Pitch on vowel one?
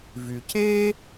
low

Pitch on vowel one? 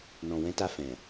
low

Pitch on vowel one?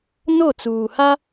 falling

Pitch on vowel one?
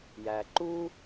low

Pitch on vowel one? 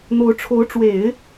rising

